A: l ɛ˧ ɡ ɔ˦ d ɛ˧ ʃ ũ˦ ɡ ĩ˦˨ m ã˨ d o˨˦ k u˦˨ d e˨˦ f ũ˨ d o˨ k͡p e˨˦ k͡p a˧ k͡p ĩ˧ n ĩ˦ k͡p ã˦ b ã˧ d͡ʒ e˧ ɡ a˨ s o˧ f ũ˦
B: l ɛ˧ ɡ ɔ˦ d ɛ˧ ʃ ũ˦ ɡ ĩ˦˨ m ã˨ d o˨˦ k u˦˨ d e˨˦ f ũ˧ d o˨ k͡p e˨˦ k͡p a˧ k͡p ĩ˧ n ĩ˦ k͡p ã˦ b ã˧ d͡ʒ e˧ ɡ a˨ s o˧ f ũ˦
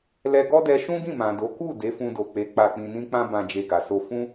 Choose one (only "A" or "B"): B